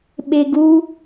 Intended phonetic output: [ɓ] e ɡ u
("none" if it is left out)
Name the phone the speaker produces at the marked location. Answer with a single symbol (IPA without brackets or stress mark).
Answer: ɓ